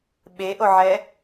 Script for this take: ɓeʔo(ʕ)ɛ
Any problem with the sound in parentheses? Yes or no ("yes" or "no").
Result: no